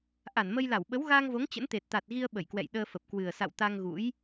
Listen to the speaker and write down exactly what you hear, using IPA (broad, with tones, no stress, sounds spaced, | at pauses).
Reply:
ʔ a˧˩ n m ə˧ j l a˧˩ w ɓ ə˨˦ w ɣ aː˧ ŋ v o˨˦ ŋ t͡ɕ ə̰˧˥ n t̪ e˨˩ t̚ t̪ a˨˩ t̚ ɣ i˧ ə̯ ɓ ə˧˩ j k w ɛ̰˧˨ j ɗ əː˧ f ə˨˩ p̚ k w ɨ˨˩ ə̯ s a̰˧˨ w t̪ a˧ ŋ ɣ ṵ˧˥ j